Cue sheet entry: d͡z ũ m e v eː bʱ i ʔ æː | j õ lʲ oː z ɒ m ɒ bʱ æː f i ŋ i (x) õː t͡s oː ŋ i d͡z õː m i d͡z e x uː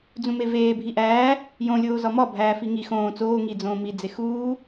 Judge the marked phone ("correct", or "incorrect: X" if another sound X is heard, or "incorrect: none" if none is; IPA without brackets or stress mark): correct